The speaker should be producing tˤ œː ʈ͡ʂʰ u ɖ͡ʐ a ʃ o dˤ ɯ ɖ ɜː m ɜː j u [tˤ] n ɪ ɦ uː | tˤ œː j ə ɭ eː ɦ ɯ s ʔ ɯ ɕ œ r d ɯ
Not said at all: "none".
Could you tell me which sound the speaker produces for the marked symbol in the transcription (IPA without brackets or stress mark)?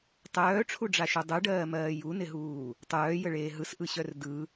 none